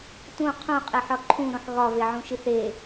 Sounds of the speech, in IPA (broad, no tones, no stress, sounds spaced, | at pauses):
t ũ qʰ ũ qʼ e ħ ɒ ǃʰ ũ ɾ õ ħ ɣ ɒ v e ʕ ũ ʃ i θ e